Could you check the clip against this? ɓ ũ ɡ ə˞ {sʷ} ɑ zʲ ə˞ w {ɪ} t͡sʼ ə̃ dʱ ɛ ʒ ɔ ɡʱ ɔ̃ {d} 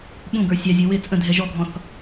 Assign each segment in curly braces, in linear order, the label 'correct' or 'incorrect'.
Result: incorrect, correct, incorrect

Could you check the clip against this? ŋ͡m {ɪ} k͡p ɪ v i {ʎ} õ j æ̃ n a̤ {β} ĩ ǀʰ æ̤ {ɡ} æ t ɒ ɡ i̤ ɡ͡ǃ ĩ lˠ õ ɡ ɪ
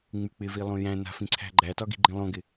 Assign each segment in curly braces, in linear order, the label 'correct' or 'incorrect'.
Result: incorrect, incorrect, incorrect, incorrect

